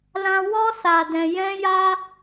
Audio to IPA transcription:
lã˧wɔ˦ sa˧dɛ̃˧ jɛ̃˦ja˦

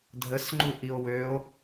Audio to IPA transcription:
dʱəsŋ͡ǃuʔio̯ wøo̯

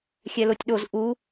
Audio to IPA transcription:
xʲɛlotʲɗoz ʔu

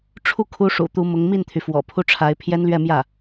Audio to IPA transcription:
ʈ͡ʂʰu˥˩kʰu˧˥ ʂṵ˨˩t̪u˧˥mʊ˧˥ŋ mi˥˩nt̪ʰy˩ fwɔ̰˨˩pʰu˥ʈ͡ʂʰa˧˥ɪ̯ pʰjɛ˥nlɥɛ˥˧mjä˥˩

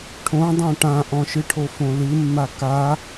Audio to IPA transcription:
ʈʰõdˤõ ʈãʔɔ̃ʃɨʈʰo fõlɨmːa ka

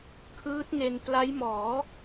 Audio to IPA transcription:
kʰɯː˦˥t̚ŋe˧n pla˦˥jmɔː˩˦

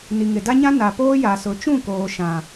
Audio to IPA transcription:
ni˨ŋɪ˨da˦ɲã˦ na˨poː˦ja˨sʊ˨˦ t͡ʃũ˦˨koː˨ʃã˨

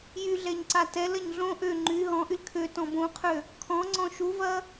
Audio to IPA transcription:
jyɮɛɲǀa tɛlɐɲ ɮõ ʔø ŋ͡ǃy ɦɔ̃ʔyl kʰøtɔ̃ bõqʰø | kʰɔ̃ŋ͡ǀɔ̃ ʃuvɐ

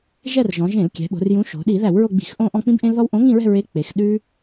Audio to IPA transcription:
ʒɛ˦˨rʒɔ̃˩˧ʒẽ˧˩˧lkʲɛ̤˩˧ ɓo̤˩˧rjũ˨˥ ʃo̤˩˧ ɗi˧˩˧ ðæ˧˩˧wɹo˦˨ɡ͡bi̤˧˩˧x ʔõ˦˨ʔɔ̃˦˨k͡pĩ˦b ʔẽ˦lðɔ˦w ʔõ˨˥ŋĩ˦˨ɹɛ̤˦˨ ɹe˨˥ k͡pe˩˧x ɗʉ˦

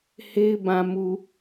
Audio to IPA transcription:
he˦ɪ̯ bã˨mu˨

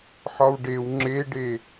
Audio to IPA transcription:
ħɒwɖew ŋ͡ǁeɖe

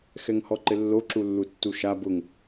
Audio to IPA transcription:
xɛŋhɔǃɪlːo ǁulːutːuʃa bʊŋ

